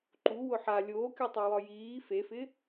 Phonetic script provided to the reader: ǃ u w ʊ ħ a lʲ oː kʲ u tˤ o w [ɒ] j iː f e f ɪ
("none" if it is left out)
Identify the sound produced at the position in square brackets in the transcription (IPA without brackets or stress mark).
ɒ